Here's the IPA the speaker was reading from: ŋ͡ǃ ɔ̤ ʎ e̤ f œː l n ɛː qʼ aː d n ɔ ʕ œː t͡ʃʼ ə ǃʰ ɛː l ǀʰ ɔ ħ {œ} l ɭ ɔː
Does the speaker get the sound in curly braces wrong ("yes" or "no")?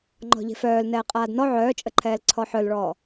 no